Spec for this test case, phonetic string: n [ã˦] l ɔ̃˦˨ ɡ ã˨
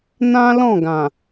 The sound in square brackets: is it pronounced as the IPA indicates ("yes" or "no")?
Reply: yes